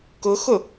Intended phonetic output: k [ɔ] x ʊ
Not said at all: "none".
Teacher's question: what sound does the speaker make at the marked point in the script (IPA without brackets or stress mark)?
ʊ